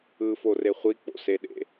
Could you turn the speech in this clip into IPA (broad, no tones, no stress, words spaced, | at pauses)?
ɯfore χʷik͡po̰seɗḛ